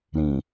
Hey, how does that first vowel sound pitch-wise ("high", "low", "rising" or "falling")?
low